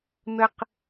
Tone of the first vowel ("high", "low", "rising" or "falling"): high